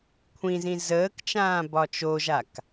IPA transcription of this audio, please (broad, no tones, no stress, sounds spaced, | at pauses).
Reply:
kʷʰ ĩ z ĩ z əː k t͡ʃ ãː b ɒ t͡ʃ o ʒ a k